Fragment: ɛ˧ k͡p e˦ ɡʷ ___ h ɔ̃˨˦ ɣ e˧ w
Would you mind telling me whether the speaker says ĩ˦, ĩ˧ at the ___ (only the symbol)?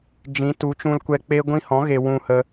ĩ˧